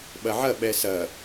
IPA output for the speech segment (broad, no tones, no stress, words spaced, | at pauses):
ɓɐʕɐ ɓɛsɐ